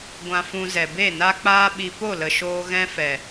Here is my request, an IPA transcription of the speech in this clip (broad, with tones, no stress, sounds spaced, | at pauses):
ɡʷ ã˧ f ũ˧ z ɛ˨ b e˦˨ n a˦ k͡p aː˦ ɓ i˧ p o˦˨ l ə˨ ʃ oː˧ ɣ ɛ̃˦ f ɛ˨